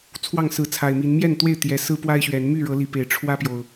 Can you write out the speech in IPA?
t͡sʰwɑ˥˨ŋsɹ̩˨˦t͡sʰa˨˩ɪ̯mi˨˦n mjɛ˥˨nt̪we˥˨ɪ̯ t̪jɛ˨˩ sɹ̩˦pwa˦ɪ̯ɕɥɛ˨˦n my˥˨ɻɤ˨˦li˨˩ pe˨˦ɪ̯ ʈ͡ʂʰwä˦pjo˨˩ʊ̯

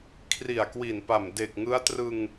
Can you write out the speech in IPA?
kʰri˨˩a̯kwi˨˩npa˨˩m de˨˩k̚ ŋɯ˦˥a̯ trɯ˧ŋ

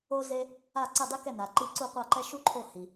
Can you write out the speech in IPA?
o˥ ze˥ | a˥˩ǀi˥˩ dˤi˥kɛ˥˩ na˩ǃi˥˩ ǀu˥˩qʷa˥˩ǃɛ˥ ʃu˥ ǃʰo˥˩ hi˩

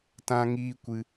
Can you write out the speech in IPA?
tã˦ŋiː˦kʷɨ˧

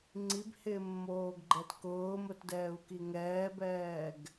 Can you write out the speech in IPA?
ŋ͡ǀibhɪːmːoːɡɡ͡ǃɛt kʊːmʊtdɛːu̯ki ŋɛːbɛːɡ

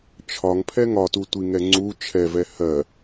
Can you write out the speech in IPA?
t͡ʃʰɒŋpʰɛ ŋɒtutʷiŋɛ ŋ͡ǀu t͡ʃʰɛvɛ hɜ

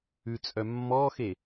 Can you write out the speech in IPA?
ʉt͡sʼœ mːɔxe

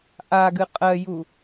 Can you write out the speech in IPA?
ʔa ɡɨqʼɜju

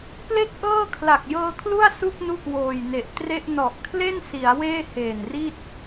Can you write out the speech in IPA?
ple˥˩k̚ʔɤː˥˩kʰla˨˩k̚ jɤː˧kʰlu˥˩a̯ su˥˩k̚nu˦˥ʔ woː˨˩jne˨˩ʔtre˥˩ʔ nɔ˨˩ʔ kʰle˥˩nsi˩˦a̯ weː˥˩heː˨˩nri˥˩t̚

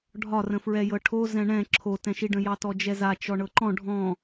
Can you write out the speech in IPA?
ɖʱɒrə̃fɹɛjɤ ʈʰo zɛ̃ɳɛ̃ ǁʰotɛ̃ʃiɖə̃ jɑtɔd͡ʒɛza t͡ʃɔɳɤǃɔ̃ ɖʱɔ̃

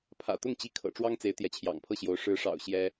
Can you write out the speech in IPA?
pʰä̰˨˩t̪ʊ˥˩ŋt͡ɕi˧˥ kʰɤ̰˨˩ ʈ͡ʂwɑ˥ŋt͡se˧˥ɪ̯ t̪jɛ˧˥t͡ɕʰjɑ̰˨˩ŋpʰɤ˥˩ɕjo˧˥ʊ̯ ʂɻ̩˧˥ʂɑ̰˨˩ʊ̯ ɕjɛ˥

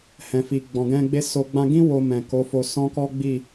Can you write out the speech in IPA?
hɛ̃˨fi˨ ɡ͡bɔ̃˨ɡɛ̃˧ɡ͡be˦ so˧ ɡ͡bã˧ɡĩ˦ wo˧mɛ̃˨ko˨˦ fo˧sɔ̃˦kɔ˦ ɡ͡bi˦˨

